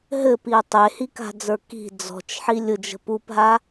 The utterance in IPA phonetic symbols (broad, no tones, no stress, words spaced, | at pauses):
ɦɘpiə̯ tˤehika̤d͡zə˞ ki̤ d͡zɔ̤t͡ʃħi lʲʊd͡ʒə̤ pupɦa